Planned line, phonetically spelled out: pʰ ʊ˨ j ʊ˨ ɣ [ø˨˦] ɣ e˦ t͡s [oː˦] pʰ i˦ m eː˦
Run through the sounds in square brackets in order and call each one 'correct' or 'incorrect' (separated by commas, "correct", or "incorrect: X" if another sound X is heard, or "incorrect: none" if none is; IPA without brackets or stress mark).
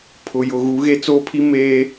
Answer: incorrect: u˨˦, correct